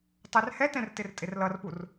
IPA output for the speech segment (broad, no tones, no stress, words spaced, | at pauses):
tˤɛrhɛtɛ̃r tɪrtʼɪrlʌrpur